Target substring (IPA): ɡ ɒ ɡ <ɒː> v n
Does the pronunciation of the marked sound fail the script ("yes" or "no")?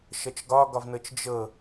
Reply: yes